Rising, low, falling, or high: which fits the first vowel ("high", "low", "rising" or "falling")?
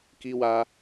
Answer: high